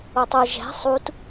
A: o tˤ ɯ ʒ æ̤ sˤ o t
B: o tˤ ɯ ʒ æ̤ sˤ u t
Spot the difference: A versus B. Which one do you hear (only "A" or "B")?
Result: B